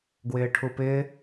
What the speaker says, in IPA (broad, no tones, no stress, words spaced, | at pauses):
ɡwɪːʈʰupɪː